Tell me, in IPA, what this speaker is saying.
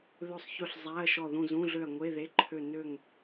ð ɵ˦˨ sˤ ç ɵ˦˨ ɬ zˤ æ˧˥˧ ɐ̯ ʃ ɔ˦˨ ð ũ˦˨ z ũ˧˥˧ ɮ ø˦˨ ɐ̯ ŋʷ e˧˥˧ ð e˧˥˧ ǃʰ ø˦˨ n ø˦˨ ŋ

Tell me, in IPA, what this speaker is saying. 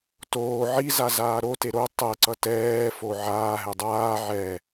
t oː ʕ i z a z aː ɾ o t e ɾ o tˤ ɛ ǀ ʌ t ɛː f o ʕ aː ɦ ɛ dˤ aː ʕ ɛ

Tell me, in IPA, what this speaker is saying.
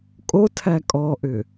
kʼ o tʰ æ kʼ ɔ ʔ ʏ

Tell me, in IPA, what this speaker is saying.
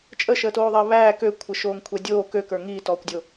t͡ʃʼ ə ʃ əː t oː ðˤ ɐː β æː k ø kʷʰ ə ʃ oː ŋ kʷʰ ɛ dʲ oː k ø k ə˞ ŋ iː t ɔː kʷ dʲ o

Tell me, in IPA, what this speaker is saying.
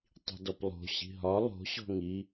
tˤ i̤ d ɔ p lˠ o̤ ɕ i̤ ɦ ɒ lˠ o̤ ɕ ɔ̤ ŋ i

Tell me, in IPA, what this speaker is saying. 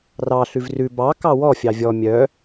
r ɑ ɬ ʉ v r ʉ b ɑ k ɑ w ɔ fʲ ɑ vʲ ɔ mʲ œ

